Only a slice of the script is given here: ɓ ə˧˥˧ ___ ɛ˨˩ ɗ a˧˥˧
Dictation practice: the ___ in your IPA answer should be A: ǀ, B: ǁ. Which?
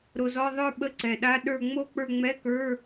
A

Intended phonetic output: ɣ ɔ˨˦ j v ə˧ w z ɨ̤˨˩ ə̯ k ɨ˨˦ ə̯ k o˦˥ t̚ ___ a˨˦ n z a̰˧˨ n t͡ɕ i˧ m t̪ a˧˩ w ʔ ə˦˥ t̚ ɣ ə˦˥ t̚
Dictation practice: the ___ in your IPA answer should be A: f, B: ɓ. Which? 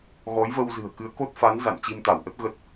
A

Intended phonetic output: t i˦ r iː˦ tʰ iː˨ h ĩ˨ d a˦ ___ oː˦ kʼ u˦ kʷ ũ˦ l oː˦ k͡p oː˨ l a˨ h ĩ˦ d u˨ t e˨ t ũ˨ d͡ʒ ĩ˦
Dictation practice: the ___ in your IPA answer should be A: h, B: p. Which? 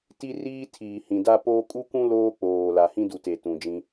B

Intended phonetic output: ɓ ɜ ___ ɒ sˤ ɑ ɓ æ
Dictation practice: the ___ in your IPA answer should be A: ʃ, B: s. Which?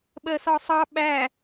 B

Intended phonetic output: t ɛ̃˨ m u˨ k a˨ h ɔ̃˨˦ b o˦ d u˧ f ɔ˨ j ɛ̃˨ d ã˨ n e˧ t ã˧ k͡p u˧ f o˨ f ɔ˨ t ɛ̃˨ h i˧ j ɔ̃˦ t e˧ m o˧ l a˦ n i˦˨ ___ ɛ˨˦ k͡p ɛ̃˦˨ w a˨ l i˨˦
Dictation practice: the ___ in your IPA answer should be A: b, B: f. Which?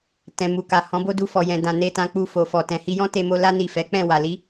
B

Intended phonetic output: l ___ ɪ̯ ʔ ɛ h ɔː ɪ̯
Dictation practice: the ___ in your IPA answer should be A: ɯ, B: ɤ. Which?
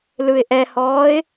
A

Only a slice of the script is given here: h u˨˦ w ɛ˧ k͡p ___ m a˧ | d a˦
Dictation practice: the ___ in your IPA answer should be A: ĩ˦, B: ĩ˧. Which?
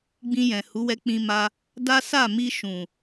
B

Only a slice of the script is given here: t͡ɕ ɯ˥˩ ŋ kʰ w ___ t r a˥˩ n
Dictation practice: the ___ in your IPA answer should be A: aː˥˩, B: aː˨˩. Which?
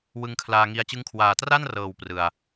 B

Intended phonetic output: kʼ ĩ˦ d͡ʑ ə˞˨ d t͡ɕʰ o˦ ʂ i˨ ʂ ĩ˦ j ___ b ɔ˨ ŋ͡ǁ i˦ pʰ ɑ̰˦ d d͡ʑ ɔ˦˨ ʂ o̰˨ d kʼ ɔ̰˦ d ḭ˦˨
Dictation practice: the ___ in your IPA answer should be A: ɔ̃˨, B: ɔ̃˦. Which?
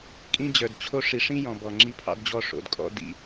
A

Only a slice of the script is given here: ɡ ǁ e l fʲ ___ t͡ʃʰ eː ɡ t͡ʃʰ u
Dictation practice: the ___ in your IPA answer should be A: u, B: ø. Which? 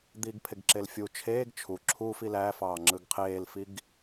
A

